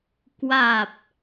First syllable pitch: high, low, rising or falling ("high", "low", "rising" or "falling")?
low